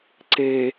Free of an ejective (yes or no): yes